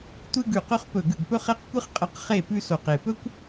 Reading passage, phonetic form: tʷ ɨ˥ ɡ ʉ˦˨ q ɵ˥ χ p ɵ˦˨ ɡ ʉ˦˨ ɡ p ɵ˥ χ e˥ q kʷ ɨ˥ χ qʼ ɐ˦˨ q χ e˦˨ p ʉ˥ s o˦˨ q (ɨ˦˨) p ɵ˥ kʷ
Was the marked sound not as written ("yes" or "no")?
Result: yes